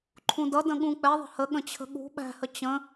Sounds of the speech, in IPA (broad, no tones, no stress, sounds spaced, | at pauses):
ǃʰ ũ d ʌ d ə̃ ɠ ũ k͡p ɛ ðˤ ə̤ h ə ɠ ə̃ t͡ɕʰ ə̤ ɠ ṳ ɓ æ̤ h ə t͡ɕ ə̃